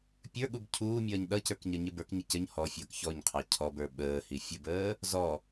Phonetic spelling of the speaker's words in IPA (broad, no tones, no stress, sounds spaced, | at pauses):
pʲ ə˞ ɠ u b cʰ uː mʲ ʌː ɲ ɗ ʌ c ə˞ k ɲ ʌ ɲ ɪ b ə˞ k ɲ ə c ə ɲ h ɔ fʲ ʌː k ç ɔ ɲ qʰ ɑ cʰ ɔ b ə˞ ɓ əː h i fʲ ə b əː | z ɔ